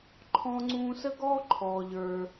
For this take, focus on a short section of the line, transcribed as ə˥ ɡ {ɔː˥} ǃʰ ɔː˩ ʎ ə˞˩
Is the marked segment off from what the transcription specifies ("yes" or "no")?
no